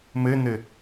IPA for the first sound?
m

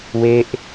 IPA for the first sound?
w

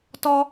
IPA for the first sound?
t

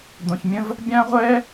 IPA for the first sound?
d̪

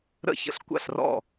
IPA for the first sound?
ɾ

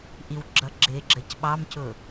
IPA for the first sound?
ʔ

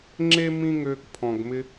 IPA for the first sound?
ŋ͡ǁ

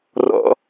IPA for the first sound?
r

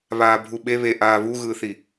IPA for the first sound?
β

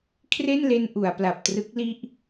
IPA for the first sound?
kʰ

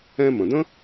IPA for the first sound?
ɛ̃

